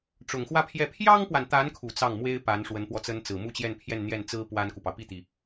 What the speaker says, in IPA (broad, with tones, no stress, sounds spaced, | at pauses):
ʈ͡ʂ ʊ˨˩ ŋ x w ä˥˧ pʰ j ɛ˥˩ pʰ j ɑ˥ ŋ p w a˨ n t̪ a˧˥ n kʰ u˨˩ t͡s ɑ˥˩ ŋ m w e˥ ɪ̯ p a˧˥ n ʂ w ə˧˥ n p w ɔ˧ t͡s ə˥ n t͡s ɹ̩˨˩ m u˥˧ t͡ɕ j ɛ˥˧ n pʰ j ɛ˥˧ n n̪ j ɛ˥˩ n t͡s ɹ̩˥ p w a˥ n k u˨ p ɑ˩ ʊ̯ p i˥˩ t̪ i˩